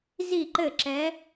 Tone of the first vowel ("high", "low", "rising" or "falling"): falling